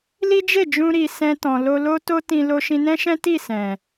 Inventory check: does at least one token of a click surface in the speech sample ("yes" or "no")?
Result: no